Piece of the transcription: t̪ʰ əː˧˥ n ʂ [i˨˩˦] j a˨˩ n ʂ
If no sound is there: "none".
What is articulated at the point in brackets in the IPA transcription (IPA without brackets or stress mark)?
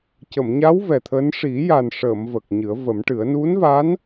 i˨˩˦